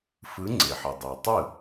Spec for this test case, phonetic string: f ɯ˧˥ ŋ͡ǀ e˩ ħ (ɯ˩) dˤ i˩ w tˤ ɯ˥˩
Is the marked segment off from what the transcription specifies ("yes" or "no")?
no